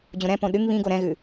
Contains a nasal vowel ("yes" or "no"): yes